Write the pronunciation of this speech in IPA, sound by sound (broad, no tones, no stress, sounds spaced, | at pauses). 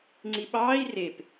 ŋ͡ǀ i ɓ ɑː i̯ r e p